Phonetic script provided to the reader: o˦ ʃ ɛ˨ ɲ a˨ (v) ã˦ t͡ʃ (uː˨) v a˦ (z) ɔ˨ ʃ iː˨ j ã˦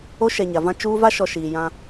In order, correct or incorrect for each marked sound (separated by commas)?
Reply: correct, incorrect, incorrect